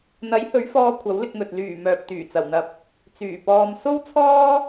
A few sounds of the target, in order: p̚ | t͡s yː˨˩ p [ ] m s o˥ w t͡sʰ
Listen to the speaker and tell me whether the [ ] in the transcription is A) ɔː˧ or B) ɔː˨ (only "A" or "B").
A